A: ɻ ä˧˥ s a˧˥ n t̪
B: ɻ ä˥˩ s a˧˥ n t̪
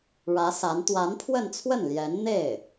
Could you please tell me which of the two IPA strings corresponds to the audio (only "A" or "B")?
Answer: A